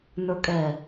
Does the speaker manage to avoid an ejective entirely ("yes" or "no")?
no